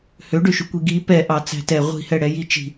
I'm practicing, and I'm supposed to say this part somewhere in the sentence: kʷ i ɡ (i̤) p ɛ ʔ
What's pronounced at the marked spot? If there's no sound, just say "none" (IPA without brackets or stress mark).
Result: i